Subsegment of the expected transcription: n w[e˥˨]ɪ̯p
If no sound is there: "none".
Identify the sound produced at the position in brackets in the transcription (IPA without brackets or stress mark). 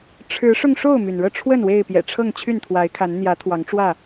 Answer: e˥˨